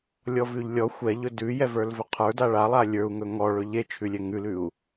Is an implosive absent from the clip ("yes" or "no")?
yes